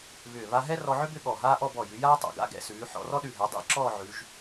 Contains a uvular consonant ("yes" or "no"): no